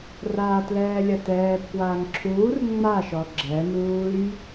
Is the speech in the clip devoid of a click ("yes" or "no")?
no